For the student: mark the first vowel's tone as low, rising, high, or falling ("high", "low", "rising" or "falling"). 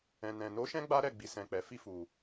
low